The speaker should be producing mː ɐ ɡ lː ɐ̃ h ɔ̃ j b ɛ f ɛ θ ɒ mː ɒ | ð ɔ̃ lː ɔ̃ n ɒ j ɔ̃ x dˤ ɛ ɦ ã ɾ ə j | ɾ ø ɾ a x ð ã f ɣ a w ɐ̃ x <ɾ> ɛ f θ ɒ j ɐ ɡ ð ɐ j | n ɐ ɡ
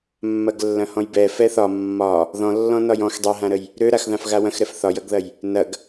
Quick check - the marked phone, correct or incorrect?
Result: correct